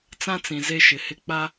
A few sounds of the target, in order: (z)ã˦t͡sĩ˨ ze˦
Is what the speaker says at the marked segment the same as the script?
no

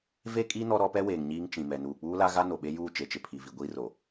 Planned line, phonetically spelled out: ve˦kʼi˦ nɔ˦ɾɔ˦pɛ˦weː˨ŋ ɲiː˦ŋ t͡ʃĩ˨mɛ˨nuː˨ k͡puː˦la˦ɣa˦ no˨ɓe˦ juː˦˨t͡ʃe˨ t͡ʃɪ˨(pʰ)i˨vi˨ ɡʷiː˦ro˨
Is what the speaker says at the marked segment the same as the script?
yes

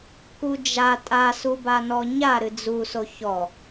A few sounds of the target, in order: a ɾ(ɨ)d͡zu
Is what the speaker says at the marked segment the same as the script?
yes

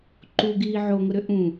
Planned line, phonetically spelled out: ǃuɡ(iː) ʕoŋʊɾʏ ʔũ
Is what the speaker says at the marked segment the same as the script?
yes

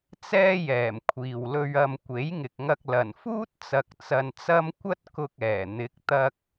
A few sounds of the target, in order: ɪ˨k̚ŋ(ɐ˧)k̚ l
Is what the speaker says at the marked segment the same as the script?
yes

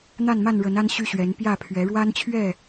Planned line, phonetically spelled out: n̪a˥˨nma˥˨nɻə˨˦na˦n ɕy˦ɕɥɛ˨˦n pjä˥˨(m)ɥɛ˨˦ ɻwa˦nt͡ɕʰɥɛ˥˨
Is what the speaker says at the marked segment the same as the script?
no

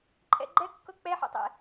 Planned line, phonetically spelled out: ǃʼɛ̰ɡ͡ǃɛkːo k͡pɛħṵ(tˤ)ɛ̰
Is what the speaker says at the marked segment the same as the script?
yes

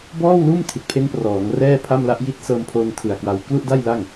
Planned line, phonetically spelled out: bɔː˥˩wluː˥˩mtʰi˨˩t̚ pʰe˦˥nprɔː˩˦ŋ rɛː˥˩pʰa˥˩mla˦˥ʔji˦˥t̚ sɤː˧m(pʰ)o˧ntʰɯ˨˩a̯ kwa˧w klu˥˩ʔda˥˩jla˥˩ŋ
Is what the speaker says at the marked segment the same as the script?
yes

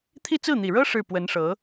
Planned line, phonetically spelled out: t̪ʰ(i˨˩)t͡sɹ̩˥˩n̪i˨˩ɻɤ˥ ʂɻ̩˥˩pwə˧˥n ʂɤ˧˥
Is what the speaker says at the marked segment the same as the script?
no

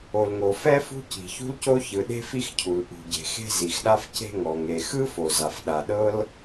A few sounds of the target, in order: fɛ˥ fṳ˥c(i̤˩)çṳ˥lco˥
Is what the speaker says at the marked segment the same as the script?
yes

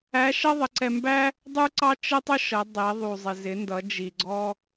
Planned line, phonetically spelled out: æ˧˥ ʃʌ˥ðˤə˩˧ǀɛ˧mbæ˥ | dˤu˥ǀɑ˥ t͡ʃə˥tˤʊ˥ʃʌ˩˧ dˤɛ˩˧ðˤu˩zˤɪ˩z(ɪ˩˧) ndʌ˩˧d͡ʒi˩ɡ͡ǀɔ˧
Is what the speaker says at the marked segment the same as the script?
yes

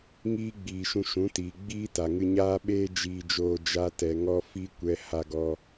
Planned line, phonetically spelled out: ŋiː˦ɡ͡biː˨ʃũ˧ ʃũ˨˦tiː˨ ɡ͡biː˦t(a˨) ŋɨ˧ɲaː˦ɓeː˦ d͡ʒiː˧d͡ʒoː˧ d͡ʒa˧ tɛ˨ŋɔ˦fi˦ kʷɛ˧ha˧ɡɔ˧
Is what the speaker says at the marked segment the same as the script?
yes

